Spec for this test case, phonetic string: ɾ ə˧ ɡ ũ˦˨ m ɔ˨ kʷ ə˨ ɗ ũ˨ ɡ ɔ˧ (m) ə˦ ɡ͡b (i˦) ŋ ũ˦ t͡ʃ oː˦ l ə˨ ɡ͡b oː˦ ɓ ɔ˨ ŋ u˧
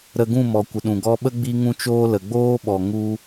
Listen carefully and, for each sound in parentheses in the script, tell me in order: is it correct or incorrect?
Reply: incorrect, correct

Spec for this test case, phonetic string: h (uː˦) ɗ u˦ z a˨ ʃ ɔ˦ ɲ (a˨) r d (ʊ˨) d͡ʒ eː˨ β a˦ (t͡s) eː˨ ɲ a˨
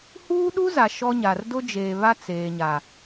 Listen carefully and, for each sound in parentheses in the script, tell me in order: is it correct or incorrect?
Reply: correct, correct, incorrect, correct

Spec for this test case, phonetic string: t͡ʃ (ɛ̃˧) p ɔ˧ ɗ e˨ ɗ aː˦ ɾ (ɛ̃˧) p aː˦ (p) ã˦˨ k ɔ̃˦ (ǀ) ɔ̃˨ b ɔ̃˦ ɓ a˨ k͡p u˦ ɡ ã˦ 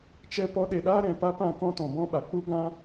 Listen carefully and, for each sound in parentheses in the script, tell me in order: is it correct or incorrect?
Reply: incorrect, incorrect, correct, incorrect

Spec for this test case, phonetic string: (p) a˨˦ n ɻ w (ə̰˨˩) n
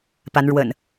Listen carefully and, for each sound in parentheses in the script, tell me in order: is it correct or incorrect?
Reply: correct, correct

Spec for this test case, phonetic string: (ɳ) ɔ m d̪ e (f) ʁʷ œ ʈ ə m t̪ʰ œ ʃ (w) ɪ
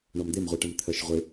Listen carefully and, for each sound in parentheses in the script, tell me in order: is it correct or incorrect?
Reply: correct, incorrect, incorrect

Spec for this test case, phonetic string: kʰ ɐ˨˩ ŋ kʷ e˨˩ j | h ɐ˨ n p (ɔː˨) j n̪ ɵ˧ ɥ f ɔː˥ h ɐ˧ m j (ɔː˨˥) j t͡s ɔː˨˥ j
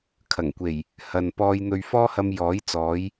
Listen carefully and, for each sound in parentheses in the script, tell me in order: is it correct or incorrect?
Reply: incorrect, correct

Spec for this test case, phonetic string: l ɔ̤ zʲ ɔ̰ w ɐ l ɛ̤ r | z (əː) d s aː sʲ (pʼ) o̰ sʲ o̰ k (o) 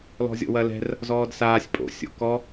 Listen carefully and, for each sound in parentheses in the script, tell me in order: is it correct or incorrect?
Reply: incorrect, correct, incorrect

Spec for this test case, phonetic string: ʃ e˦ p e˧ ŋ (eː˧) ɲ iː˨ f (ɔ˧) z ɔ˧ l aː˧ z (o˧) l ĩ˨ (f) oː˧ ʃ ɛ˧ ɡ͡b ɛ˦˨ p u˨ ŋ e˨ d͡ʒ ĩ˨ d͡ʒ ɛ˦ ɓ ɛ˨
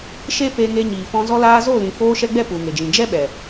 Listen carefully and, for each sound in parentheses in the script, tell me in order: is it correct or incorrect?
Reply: incorrect, incorrect, incorrect, correct

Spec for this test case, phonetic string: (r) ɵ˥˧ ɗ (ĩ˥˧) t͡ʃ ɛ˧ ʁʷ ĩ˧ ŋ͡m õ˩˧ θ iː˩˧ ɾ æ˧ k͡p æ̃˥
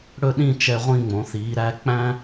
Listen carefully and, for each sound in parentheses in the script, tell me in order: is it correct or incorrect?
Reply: incorrect, correct

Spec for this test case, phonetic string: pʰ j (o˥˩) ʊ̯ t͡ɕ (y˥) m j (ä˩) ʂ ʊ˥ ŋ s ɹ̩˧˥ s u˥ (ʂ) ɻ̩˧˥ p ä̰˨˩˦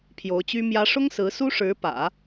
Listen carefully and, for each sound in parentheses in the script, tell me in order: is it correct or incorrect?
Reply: incorrect, correct, incorrect, correct

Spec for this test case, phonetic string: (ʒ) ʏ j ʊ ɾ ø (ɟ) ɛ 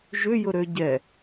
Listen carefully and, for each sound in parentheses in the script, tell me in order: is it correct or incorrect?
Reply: correct, correct

